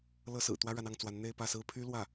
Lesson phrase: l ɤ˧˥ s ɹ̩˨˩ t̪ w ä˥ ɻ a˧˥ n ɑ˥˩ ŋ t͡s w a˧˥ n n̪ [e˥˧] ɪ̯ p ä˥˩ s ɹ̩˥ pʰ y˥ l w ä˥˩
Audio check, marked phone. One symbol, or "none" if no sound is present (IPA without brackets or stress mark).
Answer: e˥˧